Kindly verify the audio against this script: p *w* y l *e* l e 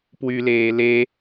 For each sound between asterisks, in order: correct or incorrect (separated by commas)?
correct, incorrect